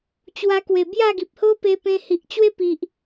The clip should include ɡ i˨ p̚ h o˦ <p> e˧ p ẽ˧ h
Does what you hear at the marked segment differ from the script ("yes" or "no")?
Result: no